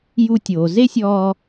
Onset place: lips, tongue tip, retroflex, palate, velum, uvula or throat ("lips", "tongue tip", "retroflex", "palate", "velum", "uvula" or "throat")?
palate